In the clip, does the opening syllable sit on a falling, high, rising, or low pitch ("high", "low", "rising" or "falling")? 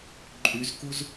rising